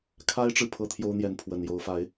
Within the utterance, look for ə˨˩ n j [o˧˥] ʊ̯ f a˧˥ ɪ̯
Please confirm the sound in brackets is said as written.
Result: yes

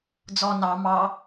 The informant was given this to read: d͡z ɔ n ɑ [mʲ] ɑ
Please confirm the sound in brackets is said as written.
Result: no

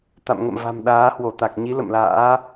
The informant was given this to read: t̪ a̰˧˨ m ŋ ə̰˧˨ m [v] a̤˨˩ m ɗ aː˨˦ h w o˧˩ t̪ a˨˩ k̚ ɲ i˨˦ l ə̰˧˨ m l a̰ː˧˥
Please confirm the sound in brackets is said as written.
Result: yes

